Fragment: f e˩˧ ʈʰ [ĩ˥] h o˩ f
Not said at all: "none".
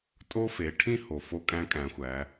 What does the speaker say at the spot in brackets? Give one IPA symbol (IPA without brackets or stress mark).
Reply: ĩ˥